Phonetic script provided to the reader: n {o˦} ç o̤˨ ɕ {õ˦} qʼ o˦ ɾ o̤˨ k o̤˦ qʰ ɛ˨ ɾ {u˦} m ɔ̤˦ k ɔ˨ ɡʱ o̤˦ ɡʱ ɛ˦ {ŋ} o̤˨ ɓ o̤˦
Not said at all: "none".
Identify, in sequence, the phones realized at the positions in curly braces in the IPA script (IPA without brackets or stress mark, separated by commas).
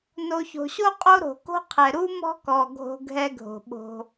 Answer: o˨, o˦, u˦, ɡʱ